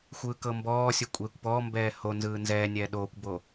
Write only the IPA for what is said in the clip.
xʷɯːkɤmbɔːsʲo kʷʼeːkʷpɔːmbɛː ho nzɯːnzɛːnʲɛː ɗoːkʷbo

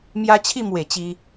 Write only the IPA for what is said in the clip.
mja˦t͡ɕʰi˥˧mwe˨˩ t͡ɕi˧

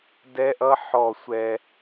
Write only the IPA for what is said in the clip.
dɛ˦˥ʔʌ˦˥ħɔ˧˩ sʷɛ˧

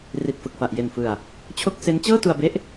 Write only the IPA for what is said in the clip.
ri˨˩t̚fɯ˨˩k̚fa˨˩ʔ je˨˩nfɯ˨˩a̯ | t͡ɕʰo˥˩k̚ se˦˥n t͡ɕɤː˥˩tu˧a̯be˦˥ʔ

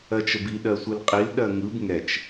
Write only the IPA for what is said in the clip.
ɜt͡ʃəbi ɗɜsʷɯlqʼil ɗɜŋɯb ŋɛt͡ʃ

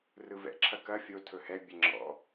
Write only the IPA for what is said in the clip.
rɯvɛ̰ ǁʰɐkɐ fʲo tʰɵhɛ bʲɛŋ͡ǁɔ̰

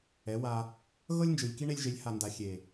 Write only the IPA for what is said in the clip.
ɛ˨˦wa˧ | ɣɤ˦lʲnd͡ʒɯ˨lʲki˦ ɳe˧lʲʒe˨˦lʲha˨nda˨ xʲe˨

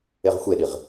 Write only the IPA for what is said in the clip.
eʁxʷeɗiʁ

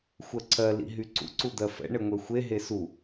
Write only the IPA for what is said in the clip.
xʷɜǀʰɜ lḭɦyǀṵ ǀud̪ɜfɛ̰ ɳeŋʷɛxʷe ɦesu

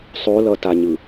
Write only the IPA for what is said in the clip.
sˤolʌtaɲɯ

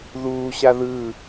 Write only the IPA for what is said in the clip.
ðuːɕa ðɯ

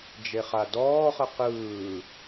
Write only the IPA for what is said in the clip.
d͡ʒeχadɔːχə qɯː

